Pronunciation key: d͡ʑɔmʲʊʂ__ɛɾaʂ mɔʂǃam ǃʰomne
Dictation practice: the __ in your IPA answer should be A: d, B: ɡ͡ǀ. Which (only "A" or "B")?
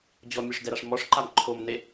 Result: A